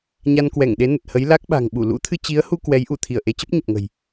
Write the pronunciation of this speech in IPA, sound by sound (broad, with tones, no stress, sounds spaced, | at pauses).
ɲ a˧ n k w ɛ˧˩ ŋ ɗ e˨˦ n ə˨˩ t̚ h ə˨˦ j l a˦˥ k̚ ɓ a̤˨˩ ŋ ɓ u˧˩ l ṵ˧˥ t̪ʰ ɨ˧ t͡ɕ i˨˦ ə̯ h u˧ k w ɛ˨˦ j ʔ u˧˩ t̪ʰ i˧˩ ə̯ ʔ e˨˦ t͡ɕ ə˦˥ p̚ ɲ ə˨˩ p̚ ŋ ə̤˨˩ j